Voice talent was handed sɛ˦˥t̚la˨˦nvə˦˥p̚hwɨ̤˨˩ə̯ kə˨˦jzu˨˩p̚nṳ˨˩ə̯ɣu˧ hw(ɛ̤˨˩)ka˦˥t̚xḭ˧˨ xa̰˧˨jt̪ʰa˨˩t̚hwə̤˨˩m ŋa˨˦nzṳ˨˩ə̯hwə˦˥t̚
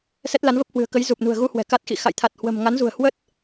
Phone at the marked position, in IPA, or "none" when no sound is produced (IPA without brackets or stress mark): ɛ̤˨˩